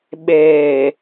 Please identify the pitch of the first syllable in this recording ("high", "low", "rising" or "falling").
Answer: low